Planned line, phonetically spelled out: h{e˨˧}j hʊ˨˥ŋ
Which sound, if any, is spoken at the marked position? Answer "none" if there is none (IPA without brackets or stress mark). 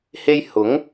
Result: e˥